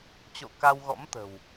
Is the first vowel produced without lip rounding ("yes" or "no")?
no